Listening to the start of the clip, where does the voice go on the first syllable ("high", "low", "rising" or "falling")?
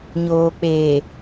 low